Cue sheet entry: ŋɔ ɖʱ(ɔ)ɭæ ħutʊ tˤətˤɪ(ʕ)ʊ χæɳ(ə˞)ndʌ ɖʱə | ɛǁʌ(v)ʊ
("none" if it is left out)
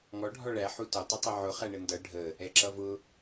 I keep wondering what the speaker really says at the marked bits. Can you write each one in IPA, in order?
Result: ɔ, ʕ, ə, v

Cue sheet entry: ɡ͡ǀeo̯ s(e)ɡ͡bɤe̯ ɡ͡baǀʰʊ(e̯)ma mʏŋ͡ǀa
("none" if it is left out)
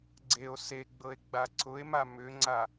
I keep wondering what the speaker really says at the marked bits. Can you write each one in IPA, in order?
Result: e, e̯

